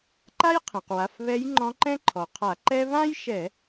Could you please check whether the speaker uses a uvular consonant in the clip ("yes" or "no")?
yes